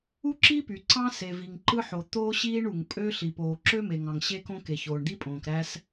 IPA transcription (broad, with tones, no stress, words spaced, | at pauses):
u˥ǁi˥py˩ ǀɑ̃˥se˩ vi˩ŋǃɯ˥ħo˩ t̪oː˥ɕiː˥ɳu˩ŋpʼø˥ ɬi˩ poː˩ǁø˥me˩ŋɑ̃˩ŋ ɕe˥kõ˥ke˩ çoː˩ɳd̪i˥pʼõː˩k ɾæː˥s